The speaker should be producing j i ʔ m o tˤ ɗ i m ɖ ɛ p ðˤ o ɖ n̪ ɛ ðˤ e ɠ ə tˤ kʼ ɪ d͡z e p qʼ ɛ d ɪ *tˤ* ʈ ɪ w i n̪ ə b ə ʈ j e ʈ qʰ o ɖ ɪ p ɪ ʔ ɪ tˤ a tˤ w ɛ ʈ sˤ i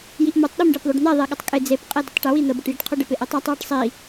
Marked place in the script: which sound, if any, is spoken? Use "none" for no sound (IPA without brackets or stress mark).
tˤ